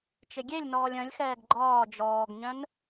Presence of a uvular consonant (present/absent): absent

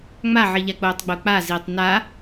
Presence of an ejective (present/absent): absent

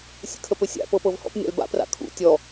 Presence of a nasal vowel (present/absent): absent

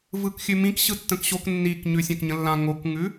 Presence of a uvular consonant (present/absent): absent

